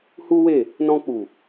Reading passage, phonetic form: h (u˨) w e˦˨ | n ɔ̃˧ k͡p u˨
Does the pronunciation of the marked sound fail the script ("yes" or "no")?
yes